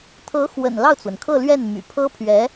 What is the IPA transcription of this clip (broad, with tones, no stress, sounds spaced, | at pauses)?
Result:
t̪ʰ ɤ˧˥ x w ə̰˨˩ n l ɑ˥˩ ʊ̯ t͡s w ə˩ n kʰ ɤ˥˧ l ɥ ɛ˥˩ n m y̰˨˩ pʰ ɤ˥ pʰ ɥ ɛ˧˥